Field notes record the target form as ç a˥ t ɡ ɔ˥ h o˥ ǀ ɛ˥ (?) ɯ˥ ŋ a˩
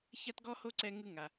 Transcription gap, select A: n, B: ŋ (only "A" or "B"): B